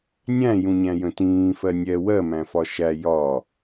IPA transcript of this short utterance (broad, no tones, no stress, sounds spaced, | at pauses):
nʲ æ̃ j ũ ɲ æ̃ j ə̃ t ĩː f ɜ nʲ ɛ w ɜ m æ̃ f ɒ ʃ æ j ɒ